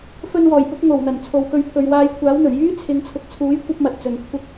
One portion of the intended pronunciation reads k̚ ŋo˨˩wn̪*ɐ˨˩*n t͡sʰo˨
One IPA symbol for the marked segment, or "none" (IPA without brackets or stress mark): ɐ˨˩